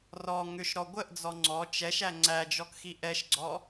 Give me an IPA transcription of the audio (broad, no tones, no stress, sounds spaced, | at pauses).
r ɔ ŋ ʏ ʃ ɾ ɔ ɡʷ ə ʔ d͡z ɔ ŋ͡ǀ ɔ t͡ʃ ɛ ʃ æ ŋ͡ǀ æ d͡ʒ ɔ k x i ʔ ɛ ʃ ɡ͡ǀ ɔ